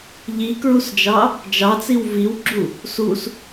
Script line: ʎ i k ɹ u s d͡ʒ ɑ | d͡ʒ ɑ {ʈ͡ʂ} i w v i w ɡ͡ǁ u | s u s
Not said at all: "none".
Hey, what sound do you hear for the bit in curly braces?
t͡s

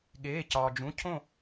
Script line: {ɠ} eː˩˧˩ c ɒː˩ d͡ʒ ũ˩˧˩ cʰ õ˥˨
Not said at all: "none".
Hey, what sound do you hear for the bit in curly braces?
ɠ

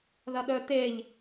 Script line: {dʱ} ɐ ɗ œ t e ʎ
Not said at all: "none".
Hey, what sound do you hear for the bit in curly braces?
ð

